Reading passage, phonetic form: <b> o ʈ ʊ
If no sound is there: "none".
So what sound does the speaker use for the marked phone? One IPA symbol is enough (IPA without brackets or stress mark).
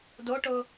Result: d